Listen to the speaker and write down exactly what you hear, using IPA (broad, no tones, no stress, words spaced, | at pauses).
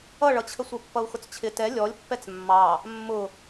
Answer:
ʌɭʌt͡ɕʰə sʷə˞pːʌu̯xʊt͡st͡ɕʰɪ tɛ lʲɔlʲpːɛt͡s mːɑ | mːʊ